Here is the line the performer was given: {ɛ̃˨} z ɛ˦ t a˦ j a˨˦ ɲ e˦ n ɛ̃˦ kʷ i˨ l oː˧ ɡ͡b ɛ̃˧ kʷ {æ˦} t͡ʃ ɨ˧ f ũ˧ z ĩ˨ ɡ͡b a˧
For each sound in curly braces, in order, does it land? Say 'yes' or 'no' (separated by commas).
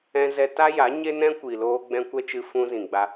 no, no